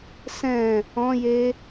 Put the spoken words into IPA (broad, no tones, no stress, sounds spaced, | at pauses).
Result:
s ɛ̃ | ɔ̃ j e